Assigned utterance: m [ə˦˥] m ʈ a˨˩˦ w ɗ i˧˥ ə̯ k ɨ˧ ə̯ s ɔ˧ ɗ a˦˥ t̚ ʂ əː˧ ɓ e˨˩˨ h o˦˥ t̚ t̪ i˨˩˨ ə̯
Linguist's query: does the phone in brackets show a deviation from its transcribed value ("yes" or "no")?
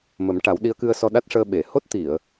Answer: yes